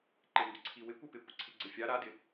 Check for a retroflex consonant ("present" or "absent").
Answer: absent